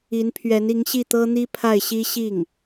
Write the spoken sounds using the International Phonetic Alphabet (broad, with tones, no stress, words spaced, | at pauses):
i˧˥npʰɥɛ˧˥ni˧˥ŋ ɕi˥˩t̪ɤ˥n̪i˥pʰa˥˩ɪ̯ ɕi˥ ɕi˥˩ŋ